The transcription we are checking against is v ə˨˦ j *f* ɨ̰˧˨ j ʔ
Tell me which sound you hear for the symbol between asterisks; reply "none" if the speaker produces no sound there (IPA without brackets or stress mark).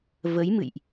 m